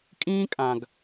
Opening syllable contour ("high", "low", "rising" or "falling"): high